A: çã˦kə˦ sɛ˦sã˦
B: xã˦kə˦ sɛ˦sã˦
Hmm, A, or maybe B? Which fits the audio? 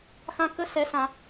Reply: B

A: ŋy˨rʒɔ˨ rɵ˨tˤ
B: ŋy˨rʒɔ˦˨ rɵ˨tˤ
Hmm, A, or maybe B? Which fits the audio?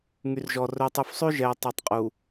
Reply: A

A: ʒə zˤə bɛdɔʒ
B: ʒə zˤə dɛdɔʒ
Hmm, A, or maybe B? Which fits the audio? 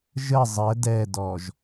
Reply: B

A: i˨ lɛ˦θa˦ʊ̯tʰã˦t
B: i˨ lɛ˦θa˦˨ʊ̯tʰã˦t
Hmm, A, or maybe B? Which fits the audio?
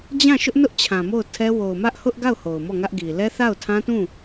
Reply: B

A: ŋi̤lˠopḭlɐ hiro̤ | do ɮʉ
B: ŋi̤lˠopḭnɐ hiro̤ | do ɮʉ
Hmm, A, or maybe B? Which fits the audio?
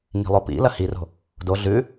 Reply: A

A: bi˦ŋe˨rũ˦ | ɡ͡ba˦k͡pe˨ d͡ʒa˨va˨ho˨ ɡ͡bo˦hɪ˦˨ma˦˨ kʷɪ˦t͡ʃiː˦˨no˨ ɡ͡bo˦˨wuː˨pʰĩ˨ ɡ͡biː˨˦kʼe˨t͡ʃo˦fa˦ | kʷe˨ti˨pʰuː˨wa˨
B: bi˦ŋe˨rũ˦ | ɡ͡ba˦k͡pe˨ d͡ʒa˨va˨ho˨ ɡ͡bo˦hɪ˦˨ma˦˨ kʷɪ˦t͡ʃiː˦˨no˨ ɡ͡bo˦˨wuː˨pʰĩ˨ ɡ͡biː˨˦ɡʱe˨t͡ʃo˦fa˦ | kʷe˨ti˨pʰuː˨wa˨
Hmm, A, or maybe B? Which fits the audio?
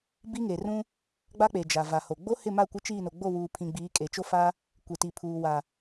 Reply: A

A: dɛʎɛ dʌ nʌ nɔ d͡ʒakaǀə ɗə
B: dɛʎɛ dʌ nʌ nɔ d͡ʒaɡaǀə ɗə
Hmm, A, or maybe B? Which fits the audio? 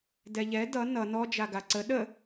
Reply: B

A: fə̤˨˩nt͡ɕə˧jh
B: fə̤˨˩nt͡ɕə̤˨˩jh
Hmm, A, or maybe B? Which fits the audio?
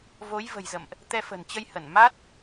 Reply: A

